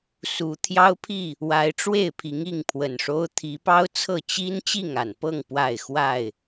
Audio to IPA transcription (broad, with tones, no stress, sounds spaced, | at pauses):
s u˨˦ t̪ʰ j ɑ˦ ʊ̯ pʰ i˥˨ | w a˨˦ ɪ̯ ʈ͡ʂ w e˥˨ ɪ̯ pʰ i˨˦ ŋ i˥˨ ŋ pʰ w ə˨˩ n ʂ o˦ ʊ̯ t̪ʰ i˨˦ p ɑ˦ ʊ̯ t͡sʰ ɤ˥˨ t͡ɕ i˦ n t͡ɕ i˥˨ ŋ a˨˩ n p ɤ˥˨ ŋ p w a˥˨ ɪ̯ x w a˥˨ ɪ̯